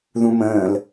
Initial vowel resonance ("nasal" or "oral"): nasal